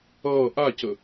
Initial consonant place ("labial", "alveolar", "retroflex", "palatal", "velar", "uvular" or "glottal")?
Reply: glottal